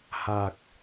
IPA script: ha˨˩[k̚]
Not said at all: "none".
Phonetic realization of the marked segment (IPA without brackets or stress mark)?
k̚